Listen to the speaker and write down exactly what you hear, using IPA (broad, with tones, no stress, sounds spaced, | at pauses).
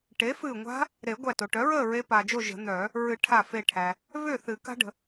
ʈ e˩˥ f ɨː˧˩ ŋʷ a̤˦˥ | ɾ e˨˩˦ ɡʷ æ˧˩ t o˩ ʈ œ˩˥ ɹ əː˥˨ ɹ e˦˥ p aː˩ d͡ʒ o˥˨ ʒ ə̤˨˩˦ n̪ œː˨˩˦ | ɹ ɨ˨˩˦ ʈʰ a˧˩ f e˧˩ ʈʰ æ˩ | v ʏː˥˨ θ ɨ˨˩˦ k a̤˦˥ ɖ ə̤˩